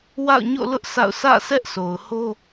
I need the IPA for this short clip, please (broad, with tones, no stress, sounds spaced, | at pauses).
w a̰˦˨ ʊ̯ ɲ o̰˦˨ l ʊ˦ ʔ sʰ a̰˦˨ ʊ̯ s ä̰˦˨ s ɛ˦ ʔ sʰ o˨ ʊ̯ h o˦